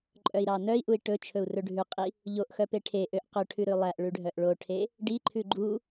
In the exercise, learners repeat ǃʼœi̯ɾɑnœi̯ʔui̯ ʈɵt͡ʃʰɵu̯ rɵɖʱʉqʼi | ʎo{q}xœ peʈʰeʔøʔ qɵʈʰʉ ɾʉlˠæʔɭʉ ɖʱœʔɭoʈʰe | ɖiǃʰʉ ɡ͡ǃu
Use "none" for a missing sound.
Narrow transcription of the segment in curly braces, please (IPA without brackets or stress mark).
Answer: ʔ